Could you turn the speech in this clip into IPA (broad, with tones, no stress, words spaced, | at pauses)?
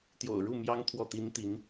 t̪jo̰˨˩ʊ̯ɻu˥˨ mjɑ˦ŋ t̪ʰwɔ˥˨t̪i˦n t̪i˨˦n